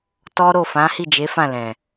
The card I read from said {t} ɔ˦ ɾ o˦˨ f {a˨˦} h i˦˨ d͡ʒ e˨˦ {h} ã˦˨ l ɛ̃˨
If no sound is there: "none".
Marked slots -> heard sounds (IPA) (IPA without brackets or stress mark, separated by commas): t, ã˨˦, f